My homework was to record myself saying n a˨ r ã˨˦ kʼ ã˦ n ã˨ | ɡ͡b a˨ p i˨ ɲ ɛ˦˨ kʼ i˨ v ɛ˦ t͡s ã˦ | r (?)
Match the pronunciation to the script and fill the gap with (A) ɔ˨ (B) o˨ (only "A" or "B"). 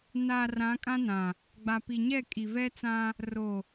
B